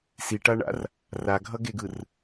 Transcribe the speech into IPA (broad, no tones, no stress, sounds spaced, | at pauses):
s i ʈ a ɳ a̰ r | r a ɡʱ ʌ ɡ e ɡ ɯ r